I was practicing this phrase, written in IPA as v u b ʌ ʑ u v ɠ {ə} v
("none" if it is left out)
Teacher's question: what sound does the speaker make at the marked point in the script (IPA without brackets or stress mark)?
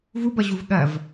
ɐ